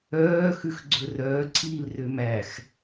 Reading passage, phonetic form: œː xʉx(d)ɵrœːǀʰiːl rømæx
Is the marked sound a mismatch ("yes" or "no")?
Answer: yes